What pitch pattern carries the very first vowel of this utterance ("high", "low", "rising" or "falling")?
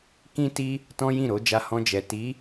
high